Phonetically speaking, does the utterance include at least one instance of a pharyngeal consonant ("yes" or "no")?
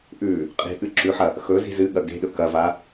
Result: yes